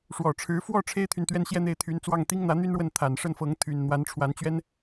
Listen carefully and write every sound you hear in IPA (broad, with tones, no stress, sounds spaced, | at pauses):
ʂ w ɔ˨˩ ʈ͡ʂʰ ɻ̩˧˥ f w ɔ˥˩ ʈ͡ʂʰ e˥ ɪ̯ t̪ʰ y˨ n t̪ ɥ ɛ˥˧ n ɕ j ɛ˥˧ n̪ e˥˩ ɪ̯ t̪ʰ y˧˥ n t͡s w ɑ˥˩ ŋ t̪ i˥ ŋ n̪ ä˧˥ n̪ y˥ n ɻ w ə˥˩ n t̪ʰ a˨˩ n ʂ ə˥˩ n f ɤ˧˥ ŋ t̪ʰ y˨˩ n n̪ w a˧˥ n ʈ͡ʂʰ w a˧˥ n t͡ɕ ɥ ɛ˥ n